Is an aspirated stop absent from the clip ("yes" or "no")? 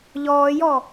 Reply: yes